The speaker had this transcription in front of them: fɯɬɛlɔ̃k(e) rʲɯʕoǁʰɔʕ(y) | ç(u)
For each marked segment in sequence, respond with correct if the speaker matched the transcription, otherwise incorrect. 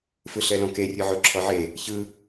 correct, incorrect: e, incorrect: ɯ

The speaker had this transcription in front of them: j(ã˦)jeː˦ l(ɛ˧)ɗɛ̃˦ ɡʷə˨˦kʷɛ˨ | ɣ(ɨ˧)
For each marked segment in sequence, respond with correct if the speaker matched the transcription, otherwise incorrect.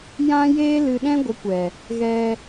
correct, incorrect: ɨ˧, incorrect: ɛ˧

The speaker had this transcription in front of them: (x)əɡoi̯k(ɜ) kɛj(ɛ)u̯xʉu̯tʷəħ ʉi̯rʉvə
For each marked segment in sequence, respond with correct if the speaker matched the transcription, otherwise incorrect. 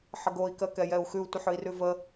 incorrect: ħ, correct, correct

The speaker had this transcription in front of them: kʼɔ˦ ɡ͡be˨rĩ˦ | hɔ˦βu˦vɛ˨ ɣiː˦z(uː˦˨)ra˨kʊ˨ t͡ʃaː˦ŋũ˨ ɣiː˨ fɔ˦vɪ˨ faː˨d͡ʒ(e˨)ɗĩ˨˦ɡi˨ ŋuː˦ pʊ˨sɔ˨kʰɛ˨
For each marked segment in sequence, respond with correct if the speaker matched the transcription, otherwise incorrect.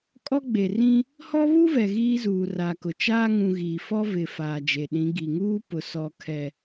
incorrect: uː˨, correct

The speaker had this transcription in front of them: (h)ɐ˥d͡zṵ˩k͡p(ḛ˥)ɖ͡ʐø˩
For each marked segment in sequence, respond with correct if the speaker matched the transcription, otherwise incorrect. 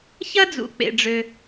incorrect: ç, incorrect: ḛ˩

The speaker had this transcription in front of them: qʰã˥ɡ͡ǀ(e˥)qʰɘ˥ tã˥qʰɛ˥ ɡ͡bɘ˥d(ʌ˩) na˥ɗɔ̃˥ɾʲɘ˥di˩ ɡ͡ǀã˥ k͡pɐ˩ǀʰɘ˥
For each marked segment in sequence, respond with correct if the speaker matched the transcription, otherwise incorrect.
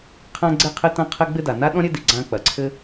correct, incorrect: a˩

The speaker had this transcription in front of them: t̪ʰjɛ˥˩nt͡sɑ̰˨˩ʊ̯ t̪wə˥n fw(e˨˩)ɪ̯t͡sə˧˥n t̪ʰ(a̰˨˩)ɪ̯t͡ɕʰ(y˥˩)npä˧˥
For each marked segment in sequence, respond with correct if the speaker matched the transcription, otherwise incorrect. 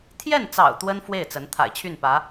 incorrect: e˥˩, correct, correct

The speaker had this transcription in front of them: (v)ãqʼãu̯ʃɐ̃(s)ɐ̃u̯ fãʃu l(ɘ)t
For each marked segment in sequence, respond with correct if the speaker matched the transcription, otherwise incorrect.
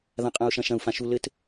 incorrect: ð, incorrect: ʃ, correct

